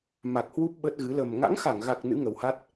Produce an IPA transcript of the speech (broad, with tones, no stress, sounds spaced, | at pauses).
m a˨˩ k̚ h w u˦˥ p̚ ɓ ə˦˥ t̚ ɣ ɨ˨˦ l ə˨˩ m ŋ a̰˧˥ ŋ x a˧˩ ŋ ɣ a˨˩ k̚ n ɨ̰˧˥ ŋ ə˨˩ w h a˦˥ t̚